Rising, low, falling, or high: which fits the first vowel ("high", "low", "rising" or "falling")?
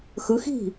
rising